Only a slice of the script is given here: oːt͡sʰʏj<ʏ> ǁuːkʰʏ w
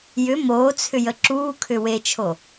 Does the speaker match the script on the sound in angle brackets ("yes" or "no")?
no